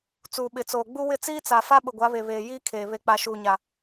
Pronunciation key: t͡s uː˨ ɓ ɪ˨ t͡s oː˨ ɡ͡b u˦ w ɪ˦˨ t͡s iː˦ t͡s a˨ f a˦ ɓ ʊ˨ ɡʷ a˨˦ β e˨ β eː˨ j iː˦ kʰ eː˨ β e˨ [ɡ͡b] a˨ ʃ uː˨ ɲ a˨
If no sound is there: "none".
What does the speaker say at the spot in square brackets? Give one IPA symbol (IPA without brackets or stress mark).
k͡p